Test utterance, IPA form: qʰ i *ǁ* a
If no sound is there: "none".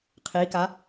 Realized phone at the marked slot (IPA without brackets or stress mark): k